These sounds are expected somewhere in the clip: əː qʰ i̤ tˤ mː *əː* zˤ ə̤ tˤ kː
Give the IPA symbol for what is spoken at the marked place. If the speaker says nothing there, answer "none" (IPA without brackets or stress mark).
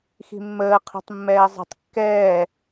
ɛː